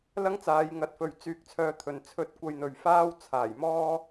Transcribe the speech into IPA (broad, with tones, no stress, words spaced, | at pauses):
lɐ˥ŋt͡saː˨˧jŋɐ˨˥t̚fɵ˨ɥ t͡syː˧k̚t͡sʰœː˧t̪ʰɵ˨n t͡sʰɵ˧t̚ kʷɐ˧jn̪ɵ˨ɥ faː˥w t͡sʰaː˨˩j mɔː˥